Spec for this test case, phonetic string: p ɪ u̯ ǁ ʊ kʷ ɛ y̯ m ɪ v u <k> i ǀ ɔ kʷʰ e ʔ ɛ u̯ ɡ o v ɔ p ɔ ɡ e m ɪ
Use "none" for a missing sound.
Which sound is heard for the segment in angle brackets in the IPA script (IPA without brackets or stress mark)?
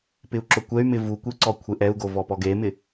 kʷ